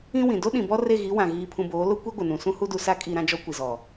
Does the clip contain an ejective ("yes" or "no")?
yes